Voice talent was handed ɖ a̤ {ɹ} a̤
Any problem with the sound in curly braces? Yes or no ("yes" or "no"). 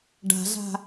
yes